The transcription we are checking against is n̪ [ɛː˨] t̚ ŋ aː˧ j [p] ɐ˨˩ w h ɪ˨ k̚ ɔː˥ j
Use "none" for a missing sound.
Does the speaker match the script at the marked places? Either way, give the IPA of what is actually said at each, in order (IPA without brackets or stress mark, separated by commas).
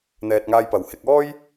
ɛː˨, p